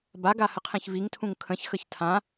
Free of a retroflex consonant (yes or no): yes